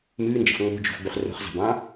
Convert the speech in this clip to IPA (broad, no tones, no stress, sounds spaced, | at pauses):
m ʉː n d͡ʒ ɑ̤ f ŋ͡m o̤ d͡ʒ o̤ f ɡ͡b ʉ χ r o̤ χ z ɑ̤ b ɑ̃